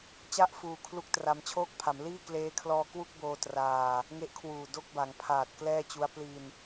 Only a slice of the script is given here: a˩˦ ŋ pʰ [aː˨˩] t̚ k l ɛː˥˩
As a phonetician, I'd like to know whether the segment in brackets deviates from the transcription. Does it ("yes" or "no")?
no